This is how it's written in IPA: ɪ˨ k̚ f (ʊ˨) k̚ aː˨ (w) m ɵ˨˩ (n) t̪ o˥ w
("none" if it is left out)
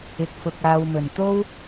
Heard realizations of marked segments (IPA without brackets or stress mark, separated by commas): ʊ˨, w, n